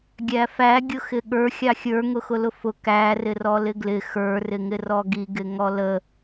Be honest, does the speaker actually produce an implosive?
yes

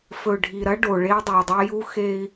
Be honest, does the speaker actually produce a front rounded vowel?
no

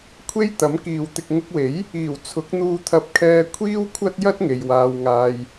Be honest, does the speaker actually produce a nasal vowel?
no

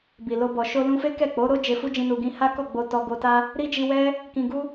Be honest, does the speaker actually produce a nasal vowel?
yes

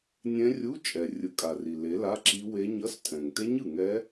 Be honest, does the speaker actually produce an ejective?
yes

